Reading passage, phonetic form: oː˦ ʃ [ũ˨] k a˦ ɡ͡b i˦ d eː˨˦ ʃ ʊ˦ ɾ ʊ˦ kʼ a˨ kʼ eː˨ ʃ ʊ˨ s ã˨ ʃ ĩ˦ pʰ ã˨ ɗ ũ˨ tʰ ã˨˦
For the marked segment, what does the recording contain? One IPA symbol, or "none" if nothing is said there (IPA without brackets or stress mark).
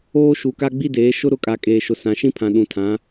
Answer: u˨